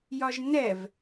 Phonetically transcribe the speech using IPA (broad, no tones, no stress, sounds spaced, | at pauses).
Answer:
j ɒ ʒ n ɛ v